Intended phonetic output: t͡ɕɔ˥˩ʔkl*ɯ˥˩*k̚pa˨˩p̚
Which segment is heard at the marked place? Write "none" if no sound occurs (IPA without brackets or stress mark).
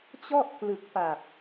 ɯ˨˩